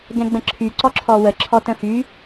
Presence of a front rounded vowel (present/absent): present